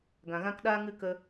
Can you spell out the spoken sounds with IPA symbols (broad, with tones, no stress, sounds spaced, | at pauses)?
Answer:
ɡ ã˨ ɣ ã˦ k ɗ aː˦ ŋ ɨ˦˨ k ə˧